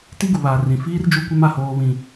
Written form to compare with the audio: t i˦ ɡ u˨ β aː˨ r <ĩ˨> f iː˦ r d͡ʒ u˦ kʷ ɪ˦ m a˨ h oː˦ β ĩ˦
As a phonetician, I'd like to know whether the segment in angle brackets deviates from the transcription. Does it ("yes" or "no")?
no